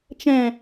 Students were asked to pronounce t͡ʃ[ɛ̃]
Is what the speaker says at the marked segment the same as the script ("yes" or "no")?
yes